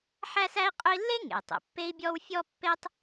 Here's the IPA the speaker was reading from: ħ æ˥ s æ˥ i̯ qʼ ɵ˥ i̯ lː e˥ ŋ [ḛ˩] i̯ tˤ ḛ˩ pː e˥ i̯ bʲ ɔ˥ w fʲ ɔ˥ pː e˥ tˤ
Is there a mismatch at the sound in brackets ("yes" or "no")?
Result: no